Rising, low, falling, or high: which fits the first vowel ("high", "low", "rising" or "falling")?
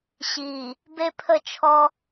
low